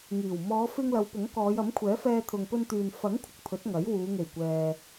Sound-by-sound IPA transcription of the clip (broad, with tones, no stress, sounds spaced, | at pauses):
ŋ iː˨˩ w m ɔː˨˧ f ɪ˧ ŋ l ɐ˨˧ w p ʊ˨˥ ŋ k ɔː˨˧ j ɐ˨˥ m kʷʰ ɛː˨˥ f ɛː˧ t̪ʰ ʊ˨ ŋ p ɵ˧ n t̪ yː˨ n f ɐ˨˥ ŋ kʷʰ ɪ˨ k̚ pʰ ɵ˨˥ t̚ ŋ ɐ˨˥ j w uː˨˧ ŋ e˨˩ j kʷ ɛː˨